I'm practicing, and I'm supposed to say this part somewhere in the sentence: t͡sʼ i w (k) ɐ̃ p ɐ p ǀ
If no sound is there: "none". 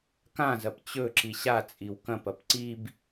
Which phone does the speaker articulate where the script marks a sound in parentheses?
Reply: k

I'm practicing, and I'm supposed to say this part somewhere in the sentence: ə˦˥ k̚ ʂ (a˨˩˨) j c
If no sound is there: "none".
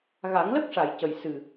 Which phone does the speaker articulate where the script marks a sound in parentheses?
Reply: a˨˩˨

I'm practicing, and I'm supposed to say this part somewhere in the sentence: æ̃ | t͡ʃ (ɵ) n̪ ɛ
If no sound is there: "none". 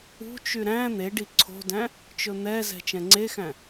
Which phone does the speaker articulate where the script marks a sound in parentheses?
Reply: ɵ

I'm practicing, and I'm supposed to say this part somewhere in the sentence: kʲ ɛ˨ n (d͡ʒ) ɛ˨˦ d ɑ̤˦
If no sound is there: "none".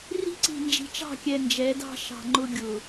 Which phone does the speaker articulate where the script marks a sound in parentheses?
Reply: d͡ʒ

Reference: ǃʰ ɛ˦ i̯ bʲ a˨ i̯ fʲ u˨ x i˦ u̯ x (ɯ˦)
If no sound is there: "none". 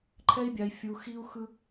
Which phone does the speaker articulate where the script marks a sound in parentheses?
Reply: ɯ˦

